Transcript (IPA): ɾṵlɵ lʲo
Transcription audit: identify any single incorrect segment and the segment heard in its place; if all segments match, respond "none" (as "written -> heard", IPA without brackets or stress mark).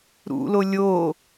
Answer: ɵ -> o